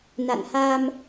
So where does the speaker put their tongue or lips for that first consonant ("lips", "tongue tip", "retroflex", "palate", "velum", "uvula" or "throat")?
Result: tongue tip